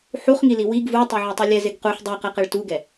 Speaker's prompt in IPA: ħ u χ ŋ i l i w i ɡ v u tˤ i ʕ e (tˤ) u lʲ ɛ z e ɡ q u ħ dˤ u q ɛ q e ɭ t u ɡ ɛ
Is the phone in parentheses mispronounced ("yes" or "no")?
no